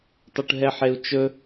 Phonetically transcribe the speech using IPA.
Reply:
tˤuʈɦɛħeu̯t͡ʃɵ

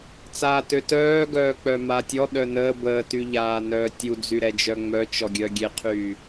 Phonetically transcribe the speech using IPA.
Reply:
t͡saːtøtœː ɡœːk͡pœmatʲɔ ɗœnəː bəːtyʎaː nœːtʲu d͡zyɾɛd͡ʒœŋ͡mœ t͡ʃɔɡʲœɡʲeqʰyː

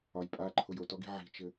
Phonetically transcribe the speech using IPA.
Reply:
ɒj pʼaǃʰʊj otɔɡi̤ ʕi̤t͡ʃɘ

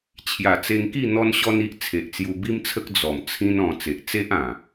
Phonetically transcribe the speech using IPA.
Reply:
t͡ɕʰja˨˩t͡se˧ŋki˥˧ n̪ɔ˦nɕɔ˦ni˦ʔ t͡sʰe˨ʔt͡sju˧bi˦mt͡sʰə˦k̚ d͡zɔ˨˩mt͡sʰĩ˦n ɔ̃˧ t͡se˨ʔ t͡se˦ʔã˨˩

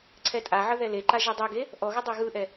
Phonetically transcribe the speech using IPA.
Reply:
ǀʰɛtʼaʕə ðɛleǃa ʒidˤɯɡe | ʔɔɣə dˤɛɣɯʔɛ

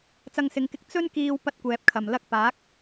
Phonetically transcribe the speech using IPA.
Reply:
t͡sɐ˧ŋsɪ˨˧ŋkɪ˧k̚ t͡sɵ˥n kiː˧w pɐ˥t̚kʷɛː˨p̚kʰɐ˨˩m lɐ˥k̚ paː˨˥k̚

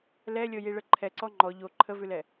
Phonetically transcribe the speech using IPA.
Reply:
lɛlʲɤjiɭə ǃʰɛǀɔ ŋ͡ǃɔ ʎo ǃʰəvʉlɛ

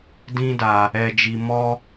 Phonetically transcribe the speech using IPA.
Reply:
dĩ˦da˧ | ɛ˧d͡ʒi˧mɔ˦

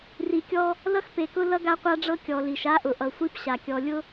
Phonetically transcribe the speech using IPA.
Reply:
ri˨kʲɔ˦ | lʌ˦xpe˨kʊ˦ lʌ˦ɡa˦qʷa˦ɖ͡ʐɤ˦ kʲɔ˨li˨ʃa˦ʔʊ˨ ʔʌ˨sʷi˦pɕa˨ kʲɔ˨lʲʊ˦

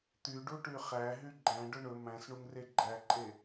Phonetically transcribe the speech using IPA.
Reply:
t̪yɖu ʈyχæɦy ɡ͡ǃæ̃ɖɵ ɳɵ mæ̃s ɳuŋreɡ͡ǃæǃʼe

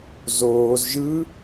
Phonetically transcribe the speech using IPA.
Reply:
zoːz ʒɯ

